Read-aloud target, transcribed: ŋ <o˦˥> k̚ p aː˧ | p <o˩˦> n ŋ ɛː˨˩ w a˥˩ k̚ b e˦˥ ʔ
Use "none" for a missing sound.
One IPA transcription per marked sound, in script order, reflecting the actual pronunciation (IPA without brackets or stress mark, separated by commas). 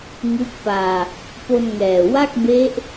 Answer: u˦˥, o˧